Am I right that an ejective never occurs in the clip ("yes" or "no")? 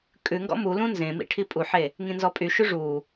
no